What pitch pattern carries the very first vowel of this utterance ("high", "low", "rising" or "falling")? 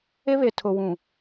high